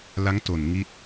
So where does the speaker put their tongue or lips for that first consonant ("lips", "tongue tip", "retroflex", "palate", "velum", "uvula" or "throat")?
tongue tip